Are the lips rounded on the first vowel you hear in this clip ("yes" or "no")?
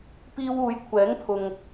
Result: no